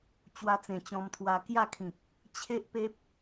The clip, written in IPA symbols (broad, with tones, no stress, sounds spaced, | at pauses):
t͡ɕ w a˧ t͡s ẽ˨˩ t͡ɕ ɔ̃˧ m t̪ʰ w a˧ k j a˥˧ kʰ ĩ˨ k̚ | t͡ɕʰ e˦ ʔ p e˦ p̚